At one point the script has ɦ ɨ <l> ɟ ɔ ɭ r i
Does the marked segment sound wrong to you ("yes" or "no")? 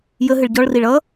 yes